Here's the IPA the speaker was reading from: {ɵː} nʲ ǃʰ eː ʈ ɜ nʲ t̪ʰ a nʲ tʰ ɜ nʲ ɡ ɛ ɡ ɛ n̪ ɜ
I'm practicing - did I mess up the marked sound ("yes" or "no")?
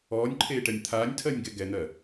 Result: yes